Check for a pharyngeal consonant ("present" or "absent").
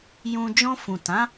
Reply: absent